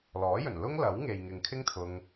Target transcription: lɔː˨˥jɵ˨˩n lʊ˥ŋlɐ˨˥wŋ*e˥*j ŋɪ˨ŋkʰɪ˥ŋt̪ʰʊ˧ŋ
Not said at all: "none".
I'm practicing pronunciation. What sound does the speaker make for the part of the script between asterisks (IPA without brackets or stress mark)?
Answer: e˨